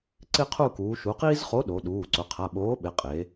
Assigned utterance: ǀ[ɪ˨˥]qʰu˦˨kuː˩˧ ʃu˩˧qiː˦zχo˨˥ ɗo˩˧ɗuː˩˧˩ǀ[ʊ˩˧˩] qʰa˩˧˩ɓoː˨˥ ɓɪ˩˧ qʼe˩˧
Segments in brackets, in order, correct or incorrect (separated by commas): incorrect, correct